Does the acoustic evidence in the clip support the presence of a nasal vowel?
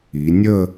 no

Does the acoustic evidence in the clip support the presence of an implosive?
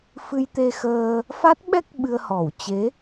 yes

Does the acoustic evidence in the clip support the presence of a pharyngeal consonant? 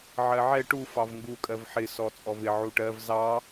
yes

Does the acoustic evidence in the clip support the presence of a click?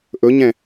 no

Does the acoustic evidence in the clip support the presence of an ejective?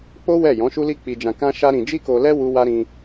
no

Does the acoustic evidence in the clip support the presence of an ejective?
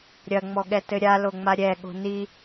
no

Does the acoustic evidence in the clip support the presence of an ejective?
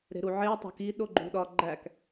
no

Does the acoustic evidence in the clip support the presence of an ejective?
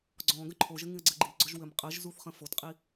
yes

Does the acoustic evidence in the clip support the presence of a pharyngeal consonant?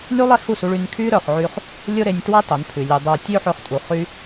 yes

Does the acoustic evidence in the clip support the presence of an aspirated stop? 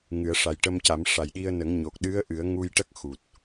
no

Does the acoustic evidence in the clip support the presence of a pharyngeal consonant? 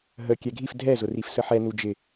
yes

